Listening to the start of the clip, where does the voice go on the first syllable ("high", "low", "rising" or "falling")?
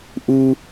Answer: high